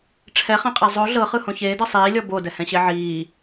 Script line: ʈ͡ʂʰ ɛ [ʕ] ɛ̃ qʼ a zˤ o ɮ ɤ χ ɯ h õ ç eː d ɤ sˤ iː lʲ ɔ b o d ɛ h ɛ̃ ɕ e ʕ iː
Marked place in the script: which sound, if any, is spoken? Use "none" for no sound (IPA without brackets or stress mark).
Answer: χ